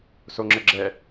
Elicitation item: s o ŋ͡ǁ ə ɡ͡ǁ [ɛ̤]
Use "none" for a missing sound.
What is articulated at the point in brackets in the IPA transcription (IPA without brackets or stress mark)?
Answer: ɛ